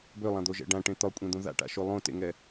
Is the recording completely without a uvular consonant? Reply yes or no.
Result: yes